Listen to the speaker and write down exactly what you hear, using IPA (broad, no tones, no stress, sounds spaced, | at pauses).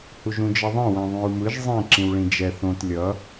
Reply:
h u ʒ ũ d͡ʒ ʌ ðˤ ɛ̃ w ɛ̃ ðˤ ũ ɹ m ɯ ʒ zˤ ĩ ǁ ĩ w ɭ ĩ d͡ʒ ɛ θ õ t lʲ ʌ